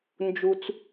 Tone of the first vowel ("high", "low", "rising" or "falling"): low